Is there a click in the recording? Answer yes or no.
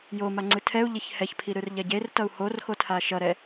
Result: yes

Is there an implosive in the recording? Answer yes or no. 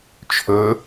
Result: no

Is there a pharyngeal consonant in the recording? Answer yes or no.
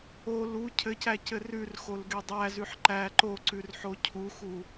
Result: yes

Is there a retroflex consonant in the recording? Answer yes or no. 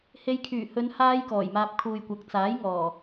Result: no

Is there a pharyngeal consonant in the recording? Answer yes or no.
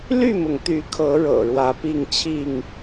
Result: no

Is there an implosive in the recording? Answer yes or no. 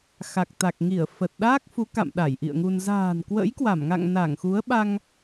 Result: yes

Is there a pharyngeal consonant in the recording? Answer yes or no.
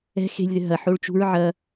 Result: yes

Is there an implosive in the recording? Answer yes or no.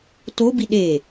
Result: yes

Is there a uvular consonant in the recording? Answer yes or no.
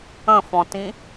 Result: no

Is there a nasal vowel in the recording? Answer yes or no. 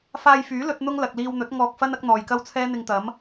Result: no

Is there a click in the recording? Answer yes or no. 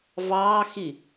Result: no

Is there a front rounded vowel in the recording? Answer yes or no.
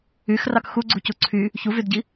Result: yes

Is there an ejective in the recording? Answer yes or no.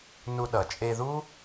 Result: yes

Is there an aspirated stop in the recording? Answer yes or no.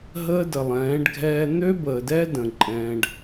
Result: no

